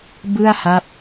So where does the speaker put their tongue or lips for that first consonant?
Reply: lips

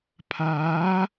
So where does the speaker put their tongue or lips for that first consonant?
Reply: lips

